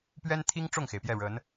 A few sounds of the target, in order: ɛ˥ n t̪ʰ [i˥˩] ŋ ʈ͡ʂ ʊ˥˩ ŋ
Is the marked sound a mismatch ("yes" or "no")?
yes